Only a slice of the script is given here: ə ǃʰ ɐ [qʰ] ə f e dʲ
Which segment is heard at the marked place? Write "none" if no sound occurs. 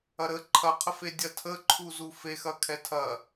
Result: qʰ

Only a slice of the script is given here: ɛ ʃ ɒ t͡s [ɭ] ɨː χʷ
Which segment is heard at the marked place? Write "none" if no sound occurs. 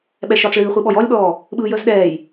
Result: ɭ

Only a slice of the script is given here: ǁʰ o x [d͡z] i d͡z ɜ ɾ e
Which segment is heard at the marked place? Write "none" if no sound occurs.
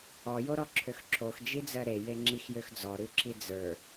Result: d͡ʒ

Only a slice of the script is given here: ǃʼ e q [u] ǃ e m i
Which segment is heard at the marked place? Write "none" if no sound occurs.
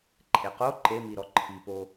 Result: o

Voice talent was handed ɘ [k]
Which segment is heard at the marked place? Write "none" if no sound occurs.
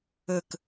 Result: k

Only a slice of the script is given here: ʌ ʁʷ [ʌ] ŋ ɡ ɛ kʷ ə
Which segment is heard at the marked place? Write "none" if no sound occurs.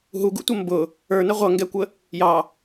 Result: ʌ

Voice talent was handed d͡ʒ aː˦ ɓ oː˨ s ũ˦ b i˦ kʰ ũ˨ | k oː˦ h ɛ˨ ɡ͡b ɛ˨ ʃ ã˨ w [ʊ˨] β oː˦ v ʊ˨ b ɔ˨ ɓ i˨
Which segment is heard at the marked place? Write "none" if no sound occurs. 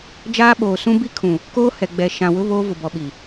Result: ʊ˦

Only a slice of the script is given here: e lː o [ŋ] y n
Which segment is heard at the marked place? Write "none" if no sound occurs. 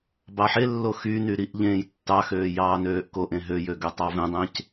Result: x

